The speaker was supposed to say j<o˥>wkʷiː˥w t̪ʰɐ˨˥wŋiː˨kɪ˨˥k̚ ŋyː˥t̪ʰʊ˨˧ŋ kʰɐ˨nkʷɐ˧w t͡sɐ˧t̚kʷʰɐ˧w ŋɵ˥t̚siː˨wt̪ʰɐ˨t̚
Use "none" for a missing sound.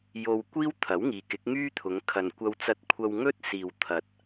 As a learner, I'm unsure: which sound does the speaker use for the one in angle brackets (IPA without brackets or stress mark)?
o˧